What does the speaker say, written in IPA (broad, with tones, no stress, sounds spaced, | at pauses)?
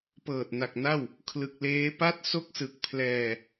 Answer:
p ɤː˨˩ t̚ n a˨˩ k̚ n a˥˩ w | kʰ l ɯ˨˩ k̚ l eː˦˥ p a˥˩ t̚ s o˥˩ k̚ s ɯ˨˩ k̚ pʰ l ɛː˧